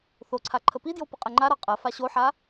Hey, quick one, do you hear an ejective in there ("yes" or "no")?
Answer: yes